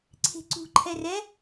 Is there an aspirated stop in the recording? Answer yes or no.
yes